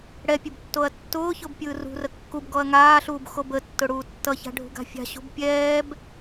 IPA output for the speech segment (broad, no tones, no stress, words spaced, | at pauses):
ɽɛ pʲɯbtːoɐ̯tːʊːçʊb pʲɯːrṳrə kːubɡɔɐ̯ ŋaːɬuːb xobətːʊ ɽuːtːʌça̤ ɖʱṳɡa̤fʲa̤ɕṳb pʲɛːb